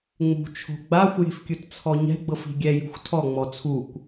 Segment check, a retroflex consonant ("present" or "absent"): absent